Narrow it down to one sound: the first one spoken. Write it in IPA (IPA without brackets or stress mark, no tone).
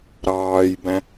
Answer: ɾ